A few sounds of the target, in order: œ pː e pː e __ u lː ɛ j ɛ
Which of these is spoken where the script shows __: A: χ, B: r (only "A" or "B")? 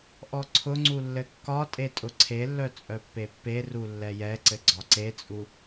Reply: B